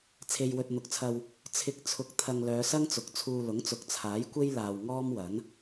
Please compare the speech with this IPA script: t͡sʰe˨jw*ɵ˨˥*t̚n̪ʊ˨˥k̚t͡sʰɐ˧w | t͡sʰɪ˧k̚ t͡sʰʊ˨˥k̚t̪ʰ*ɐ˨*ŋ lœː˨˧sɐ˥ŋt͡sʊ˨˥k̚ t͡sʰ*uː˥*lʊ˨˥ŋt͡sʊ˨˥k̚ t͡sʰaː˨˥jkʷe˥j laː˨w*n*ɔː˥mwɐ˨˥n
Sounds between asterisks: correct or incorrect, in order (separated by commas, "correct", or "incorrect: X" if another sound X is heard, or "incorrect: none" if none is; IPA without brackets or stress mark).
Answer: incorrect: ɵ˨, correct, incorrect: uː˧, incorrect: ŋ